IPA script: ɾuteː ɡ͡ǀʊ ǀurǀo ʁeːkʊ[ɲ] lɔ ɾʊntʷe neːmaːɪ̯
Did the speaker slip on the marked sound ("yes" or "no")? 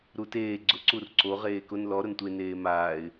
yes